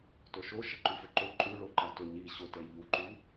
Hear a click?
yes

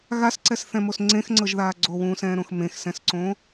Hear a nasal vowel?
yes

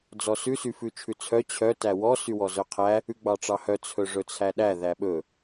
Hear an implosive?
yes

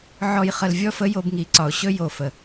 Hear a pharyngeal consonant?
yes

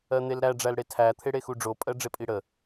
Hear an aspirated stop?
yes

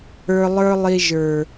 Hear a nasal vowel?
no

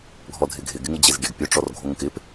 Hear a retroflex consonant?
yes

